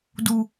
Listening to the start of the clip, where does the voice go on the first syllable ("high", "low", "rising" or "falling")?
high